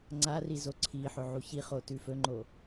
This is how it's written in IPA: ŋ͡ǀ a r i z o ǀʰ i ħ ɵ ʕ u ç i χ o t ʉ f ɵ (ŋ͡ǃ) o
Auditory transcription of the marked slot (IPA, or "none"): ŋ͡ǃ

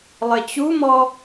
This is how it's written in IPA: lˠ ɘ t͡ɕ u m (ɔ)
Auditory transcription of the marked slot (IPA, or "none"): ɔ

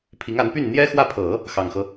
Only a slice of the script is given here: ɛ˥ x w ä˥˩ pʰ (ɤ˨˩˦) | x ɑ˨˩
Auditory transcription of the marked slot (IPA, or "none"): ɤ˨˩˦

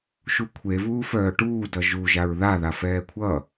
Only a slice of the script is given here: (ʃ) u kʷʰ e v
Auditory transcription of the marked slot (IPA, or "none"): ʃ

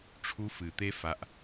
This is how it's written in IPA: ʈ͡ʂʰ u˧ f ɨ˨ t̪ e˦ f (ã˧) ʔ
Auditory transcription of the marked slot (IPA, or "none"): a˧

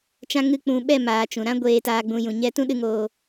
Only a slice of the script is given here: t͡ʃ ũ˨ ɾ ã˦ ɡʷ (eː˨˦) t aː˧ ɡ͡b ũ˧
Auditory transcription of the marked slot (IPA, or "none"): eː˧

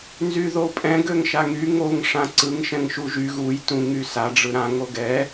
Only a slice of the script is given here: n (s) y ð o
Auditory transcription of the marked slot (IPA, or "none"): z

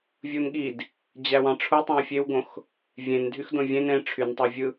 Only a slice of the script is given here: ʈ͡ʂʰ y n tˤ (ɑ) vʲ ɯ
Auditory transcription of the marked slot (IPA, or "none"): ɑ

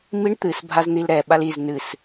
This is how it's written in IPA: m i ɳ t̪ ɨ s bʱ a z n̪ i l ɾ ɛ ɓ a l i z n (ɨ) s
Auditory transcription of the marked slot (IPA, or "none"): ɨ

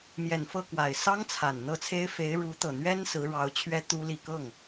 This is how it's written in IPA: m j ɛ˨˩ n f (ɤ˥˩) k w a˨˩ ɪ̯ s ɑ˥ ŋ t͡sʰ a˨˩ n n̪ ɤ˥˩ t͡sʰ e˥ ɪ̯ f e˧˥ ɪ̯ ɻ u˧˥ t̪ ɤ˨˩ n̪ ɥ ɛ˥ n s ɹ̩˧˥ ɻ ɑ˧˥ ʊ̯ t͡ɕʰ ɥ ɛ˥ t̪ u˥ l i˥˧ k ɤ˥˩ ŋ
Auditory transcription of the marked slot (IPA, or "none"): ɤ˥˩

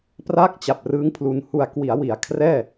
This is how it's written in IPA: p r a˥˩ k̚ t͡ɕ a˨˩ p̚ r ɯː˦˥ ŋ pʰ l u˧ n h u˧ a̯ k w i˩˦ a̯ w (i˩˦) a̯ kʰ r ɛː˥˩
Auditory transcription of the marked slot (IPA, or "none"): i˩˦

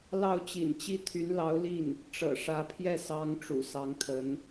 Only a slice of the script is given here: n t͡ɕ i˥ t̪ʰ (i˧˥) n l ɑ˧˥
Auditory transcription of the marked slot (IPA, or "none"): y˧˥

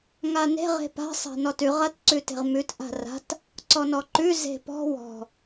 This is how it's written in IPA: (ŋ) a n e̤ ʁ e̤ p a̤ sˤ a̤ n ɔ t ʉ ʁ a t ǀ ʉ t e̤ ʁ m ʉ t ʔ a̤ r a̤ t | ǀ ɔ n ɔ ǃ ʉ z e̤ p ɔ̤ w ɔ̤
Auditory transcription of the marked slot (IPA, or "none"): ŋ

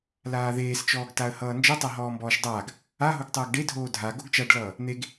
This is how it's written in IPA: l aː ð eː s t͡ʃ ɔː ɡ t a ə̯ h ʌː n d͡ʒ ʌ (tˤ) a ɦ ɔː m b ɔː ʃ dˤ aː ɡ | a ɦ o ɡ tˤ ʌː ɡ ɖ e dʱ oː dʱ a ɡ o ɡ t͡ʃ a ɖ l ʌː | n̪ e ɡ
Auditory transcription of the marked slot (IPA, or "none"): tˤ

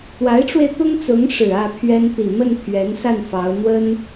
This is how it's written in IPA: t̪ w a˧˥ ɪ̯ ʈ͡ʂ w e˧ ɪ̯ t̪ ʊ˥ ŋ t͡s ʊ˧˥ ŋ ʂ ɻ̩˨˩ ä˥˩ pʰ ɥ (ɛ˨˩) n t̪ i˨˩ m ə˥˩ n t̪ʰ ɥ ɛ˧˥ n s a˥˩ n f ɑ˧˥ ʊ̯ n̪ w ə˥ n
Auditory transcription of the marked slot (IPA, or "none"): ɛ˥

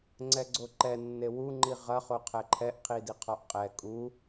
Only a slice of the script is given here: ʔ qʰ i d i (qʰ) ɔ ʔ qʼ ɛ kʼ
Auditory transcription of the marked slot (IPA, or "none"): qʰ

